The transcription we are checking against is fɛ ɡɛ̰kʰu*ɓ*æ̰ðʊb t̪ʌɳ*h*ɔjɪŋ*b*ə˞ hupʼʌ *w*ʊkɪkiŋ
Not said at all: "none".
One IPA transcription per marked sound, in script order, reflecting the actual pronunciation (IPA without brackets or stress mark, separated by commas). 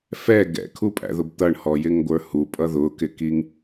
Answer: pʼ, h, ɡʷ, ð